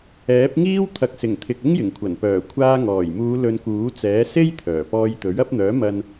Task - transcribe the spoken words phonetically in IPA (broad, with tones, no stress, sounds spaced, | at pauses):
ɛː˨˥ p̚ ŋ iː˥ w t̪ʰ ɐ˨˥ k̚ s ɪ˨˩ ŋ t̪ʰ ɪ˨ k̚ ɪ˥ ŋ j ɪ˨˩ ŋ kʷʰ ɐ˨˩ n p œː˨˩ kʷʰ aː˧ ŋ ɔː˨˩ j m uː˨˧ l ɵ˨˧ n k uː˨˥ t͡s ɛː˨˥ s e˥ j t̪ʰ œː˨˩ p ɔː˧ j t̪ ɵ˨˥ ɥ ɐ˨˥ p̚ n̪ œː˨˥ m ɐ˧ n